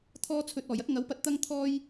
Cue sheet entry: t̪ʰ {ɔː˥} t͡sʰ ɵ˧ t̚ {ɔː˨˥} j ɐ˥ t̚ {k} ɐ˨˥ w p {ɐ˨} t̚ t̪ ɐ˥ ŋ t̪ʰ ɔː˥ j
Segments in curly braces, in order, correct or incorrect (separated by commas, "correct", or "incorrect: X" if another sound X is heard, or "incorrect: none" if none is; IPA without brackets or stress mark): correct, incorrect: ɔː˨˩, incorrect: ŋ, incorrect: ɐ˧